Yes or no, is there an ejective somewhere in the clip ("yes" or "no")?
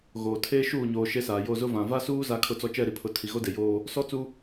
no